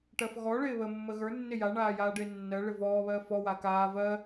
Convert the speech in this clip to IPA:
ʈ ɜ f ɣ ɔ ɭ ɪː β ə mː ə ɣ ə˞ nː ɪ j a ɳ aː j aː ɖ ɪː nː ɜ ɭ ɪ v ɔː β ɜ f ɔ w a k aː v ɜ

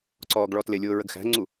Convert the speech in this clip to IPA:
ǀ ɔː ɡ ɭ ɔ t l ɪ lʲ ʊː ɹ ə ɡ x æ̤ ŋ͡ǀ u

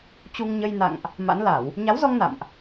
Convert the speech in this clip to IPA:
t͡ɕ u˧ ŋ ɲ ə˧ j n a̰˧˨ ŋ ʔ | m a̰˧˥ n l a˧˩˨ w | ɲ a˨˦ w z ɔ˧ ŋ n a̰˧˨ m ʔ

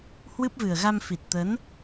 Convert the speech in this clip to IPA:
h w ɨ˦˥ p̚ v ɨ˨˩ ə̯ ɣ a˧ m f i˨˩ t̚ t̪ ə˨˦ n

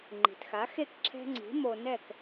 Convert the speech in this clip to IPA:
ŋ͡ǃ i̤˩ t x a˩˥ x e˥˩ k ǁʰ ɛ̤˧ ŋ͡ǀ i̤˩˥ m o˧ n ɛ˥˩ k

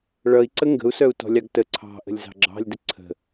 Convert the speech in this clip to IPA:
ɭ ʌ i̯ ǀ ə ŋ ɡ ə̤ u̯ s œ u̯ t ɔ̤ lʲ ɑ ɡ t ə ǀʰ ɑ̤ ʔ ə̤ lʲ z ɑ̤ ɡ͡ǁ ɑ̤ lʲ d ə ǀʰ ə̤

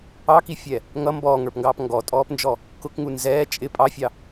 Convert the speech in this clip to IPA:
ɑ k i fʲ ɛ | ŋ ʌ m b ɔː ŋ ə˞ p ŋ ɡ ɑː p ŋ ɡ ɔ tʼ ɔː p n d͡ʒ ɔ | k ʊ k ŋ u n z ɛː t͡ʃʼ ɪ pʼ ɑ fʲ ɑ

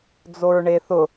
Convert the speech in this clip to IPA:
d͡z o ɹ ɳ e θ ʊ

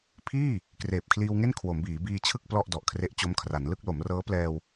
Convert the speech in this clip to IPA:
pʰ iː˥˩ | k r eː˨˩ p̚ kʰ l iː˧ w ŋ e˥˩ n kʰ w o˩˦ m b iː˩˦ b iː˧ t͡ɕʰ ɯ˥˩ k̚ p l ɔ˥˩ ʔ d ɔ˨˩ ʔ kʰ r e˦˥ ʔ t͡ɕ o˦˥ m kʰ r a˩˦ n l ɯ˥˩ k̚ l o˩˦ m r ɤː˦˥ p l ɛː˧ w

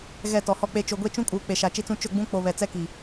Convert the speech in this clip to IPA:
ɣ ɛ˦˨ t ɔ˨ h ɔ˦ k͡p e˦ t͡ʃ o˨ ɡʷ e˦ t͡ʃ ũ˦ kʼ uː˨ k͡p e˨ ʃ a˨ t͡ʃ i˦ t͡s ũ˦ t͡ʃ ʊ˦˨ ɡ͡b ũ˦ k͡p o˨ β ɛ˨ t͡s ɛ˦ k i˨

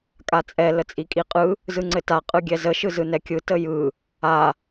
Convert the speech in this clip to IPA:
kʼ a t͡sʼ ɛ l ə t͡sʼ i kʼ i qʼ ɯ | z ɯ ŋ͡ǀ ɘ t a qʼ ɯ ɡʲ ɛ z ə ʃ ɯ z ɯ n ɛ kʲ ɯ t ə j ɯ | a

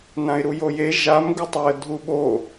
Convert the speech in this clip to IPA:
n ã ɪ̯ ɾ u j o j e ʒ a m ɡ u tˤ a ə̯ dʱ u ɓ o

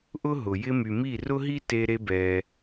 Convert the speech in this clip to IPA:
ʔ ʊ˥ ɦ ʊ˩ j ɪ˧ m y˩ m i˥˩ r ʊ˥ ɦ i˥ t e˧ ɾ e˧ b ɛ˩

